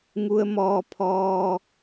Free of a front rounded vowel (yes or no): yes